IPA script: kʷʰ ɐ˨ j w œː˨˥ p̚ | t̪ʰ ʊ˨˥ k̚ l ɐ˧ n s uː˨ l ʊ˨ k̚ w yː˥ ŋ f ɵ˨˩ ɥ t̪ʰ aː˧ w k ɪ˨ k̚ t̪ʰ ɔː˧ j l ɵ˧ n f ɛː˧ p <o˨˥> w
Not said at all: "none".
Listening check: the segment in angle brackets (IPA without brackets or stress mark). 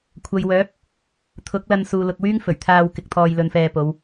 o˨˧